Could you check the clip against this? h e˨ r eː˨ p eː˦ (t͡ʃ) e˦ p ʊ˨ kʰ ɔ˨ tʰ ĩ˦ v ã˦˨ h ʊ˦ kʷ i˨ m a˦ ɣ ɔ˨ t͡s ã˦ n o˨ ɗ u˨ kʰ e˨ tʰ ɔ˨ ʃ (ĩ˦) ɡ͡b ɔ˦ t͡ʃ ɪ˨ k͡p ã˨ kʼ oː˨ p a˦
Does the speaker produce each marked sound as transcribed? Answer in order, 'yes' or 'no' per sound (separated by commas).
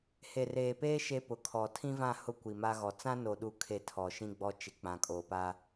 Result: no, yes